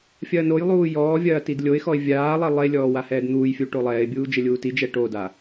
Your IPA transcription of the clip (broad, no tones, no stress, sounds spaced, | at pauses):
fʲ ɐː n o j lˠ uː j ɔː vʲ ɐː t i d lʲ o ɪ̯ x ɔ ɪ̯ vʲ aː lˠ ɛ lˠ e lʲ ɔː w a h ɛː d n̪ uː j fʲ u ʈ o lˠ ɛː ɪ̯ bʲ uː d͡ʒ ɘ lʲ uː t i d͡ʒ ɛ ʈ o d a